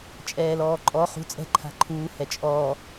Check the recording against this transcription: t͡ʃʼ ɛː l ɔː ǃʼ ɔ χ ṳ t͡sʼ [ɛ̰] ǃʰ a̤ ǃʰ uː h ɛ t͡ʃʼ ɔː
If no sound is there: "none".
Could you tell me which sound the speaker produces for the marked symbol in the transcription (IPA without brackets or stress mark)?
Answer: ɛ̤